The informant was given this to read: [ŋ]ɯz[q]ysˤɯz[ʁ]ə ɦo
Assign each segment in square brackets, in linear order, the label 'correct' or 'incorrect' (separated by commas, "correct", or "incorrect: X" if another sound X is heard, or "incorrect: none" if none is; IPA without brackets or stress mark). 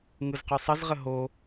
correct, correct, correct